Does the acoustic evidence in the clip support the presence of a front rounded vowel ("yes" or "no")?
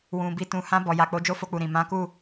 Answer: no